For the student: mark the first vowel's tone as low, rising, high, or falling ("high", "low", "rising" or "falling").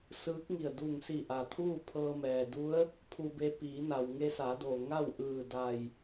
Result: rising